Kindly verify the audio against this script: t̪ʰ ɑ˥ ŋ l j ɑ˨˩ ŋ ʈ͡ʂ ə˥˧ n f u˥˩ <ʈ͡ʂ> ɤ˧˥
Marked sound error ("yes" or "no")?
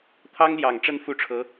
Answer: yes